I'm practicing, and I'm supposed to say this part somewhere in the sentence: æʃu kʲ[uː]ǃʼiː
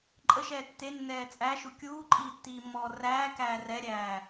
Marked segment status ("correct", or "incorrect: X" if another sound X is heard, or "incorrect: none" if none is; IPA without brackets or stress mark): correct